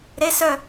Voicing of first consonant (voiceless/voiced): voiced